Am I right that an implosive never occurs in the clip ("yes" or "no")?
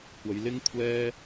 yes